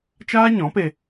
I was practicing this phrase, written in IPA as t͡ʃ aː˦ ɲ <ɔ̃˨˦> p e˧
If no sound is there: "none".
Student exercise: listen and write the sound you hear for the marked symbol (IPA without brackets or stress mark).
ɔ̃˨˦